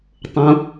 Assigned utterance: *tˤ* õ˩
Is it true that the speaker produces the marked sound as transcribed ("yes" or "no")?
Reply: yes